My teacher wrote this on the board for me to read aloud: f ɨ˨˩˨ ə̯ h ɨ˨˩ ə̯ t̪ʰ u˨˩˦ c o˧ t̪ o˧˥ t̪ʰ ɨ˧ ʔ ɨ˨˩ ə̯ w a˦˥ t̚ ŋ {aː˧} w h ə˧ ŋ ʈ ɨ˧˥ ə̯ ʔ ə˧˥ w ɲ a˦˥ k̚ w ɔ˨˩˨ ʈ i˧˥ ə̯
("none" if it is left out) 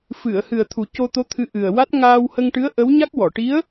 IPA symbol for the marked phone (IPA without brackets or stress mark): aː˧